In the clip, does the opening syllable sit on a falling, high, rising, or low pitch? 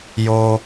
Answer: high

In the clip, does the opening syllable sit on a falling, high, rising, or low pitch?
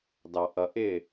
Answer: low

